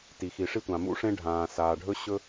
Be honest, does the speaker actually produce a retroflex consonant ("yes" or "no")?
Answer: yes